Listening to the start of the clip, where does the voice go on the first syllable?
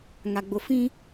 low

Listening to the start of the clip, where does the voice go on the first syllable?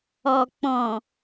low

